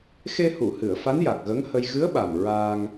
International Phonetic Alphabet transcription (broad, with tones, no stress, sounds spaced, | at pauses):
x e˧ h u˨˩˨ h ɨ˨˩˨ ə̯ f a˧˥ n j a˨˩ k̚ ɣ ə˧˥ ŋ h ə˧ j ɣ ɨ˧˥ ə̯ ɓ a˨˩ m ɹ a˧ ŋ